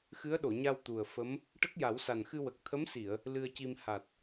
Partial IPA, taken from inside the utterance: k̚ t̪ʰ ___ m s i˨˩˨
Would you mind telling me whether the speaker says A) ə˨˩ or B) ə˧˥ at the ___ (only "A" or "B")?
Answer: B